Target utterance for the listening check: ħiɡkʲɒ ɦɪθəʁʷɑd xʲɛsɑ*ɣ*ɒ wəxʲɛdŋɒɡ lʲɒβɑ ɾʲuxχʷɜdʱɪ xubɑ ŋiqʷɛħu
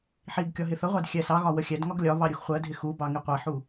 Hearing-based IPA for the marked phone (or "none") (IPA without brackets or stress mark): ɣ